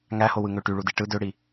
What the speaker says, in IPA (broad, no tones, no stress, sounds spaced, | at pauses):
ŋ æ h o w ɯ ŋ ø ʈ y ɭ u d i ʈ ɯ d ø ɽ i